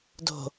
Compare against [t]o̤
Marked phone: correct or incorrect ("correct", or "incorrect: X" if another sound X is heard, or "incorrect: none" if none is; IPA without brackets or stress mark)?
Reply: incorrect: d